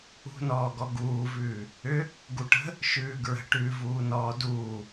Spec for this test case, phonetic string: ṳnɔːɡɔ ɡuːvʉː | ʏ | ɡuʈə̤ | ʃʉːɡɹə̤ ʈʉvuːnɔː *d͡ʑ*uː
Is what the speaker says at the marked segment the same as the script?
no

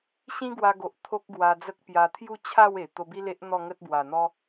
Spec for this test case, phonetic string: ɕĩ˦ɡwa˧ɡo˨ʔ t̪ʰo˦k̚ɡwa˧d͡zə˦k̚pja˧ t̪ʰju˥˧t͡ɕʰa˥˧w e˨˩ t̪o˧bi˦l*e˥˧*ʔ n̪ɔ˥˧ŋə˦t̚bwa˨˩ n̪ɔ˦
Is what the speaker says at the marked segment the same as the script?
no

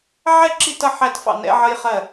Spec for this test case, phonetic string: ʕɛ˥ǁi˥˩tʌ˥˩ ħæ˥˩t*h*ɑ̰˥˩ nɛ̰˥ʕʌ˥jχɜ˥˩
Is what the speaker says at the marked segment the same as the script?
no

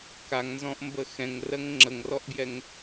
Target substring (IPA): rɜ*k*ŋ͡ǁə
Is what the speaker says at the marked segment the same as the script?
no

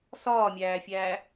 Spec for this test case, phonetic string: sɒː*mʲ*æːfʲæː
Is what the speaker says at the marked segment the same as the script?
yes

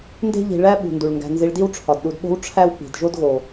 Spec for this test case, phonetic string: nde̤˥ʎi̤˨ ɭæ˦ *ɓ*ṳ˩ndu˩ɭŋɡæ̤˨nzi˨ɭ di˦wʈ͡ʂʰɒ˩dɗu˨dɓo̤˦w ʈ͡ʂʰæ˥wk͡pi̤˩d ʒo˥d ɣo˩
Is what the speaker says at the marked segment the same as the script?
yes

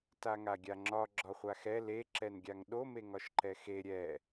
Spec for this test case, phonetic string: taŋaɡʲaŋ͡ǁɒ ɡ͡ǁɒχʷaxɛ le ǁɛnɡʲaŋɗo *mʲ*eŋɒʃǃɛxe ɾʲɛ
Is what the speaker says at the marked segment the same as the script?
no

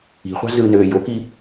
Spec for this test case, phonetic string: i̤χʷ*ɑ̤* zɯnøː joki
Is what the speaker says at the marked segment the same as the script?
yes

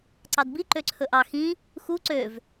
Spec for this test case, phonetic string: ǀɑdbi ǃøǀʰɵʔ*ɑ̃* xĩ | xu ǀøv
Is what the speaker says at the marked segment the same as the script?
no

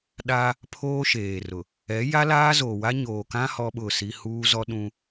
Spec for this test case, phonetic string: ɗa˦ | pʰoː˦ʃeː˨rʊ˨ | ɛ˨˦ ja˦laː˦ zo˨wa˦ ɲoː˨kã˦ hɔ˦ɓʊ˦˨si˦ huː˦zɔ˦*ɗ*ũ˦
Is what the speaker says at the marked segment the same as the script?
yes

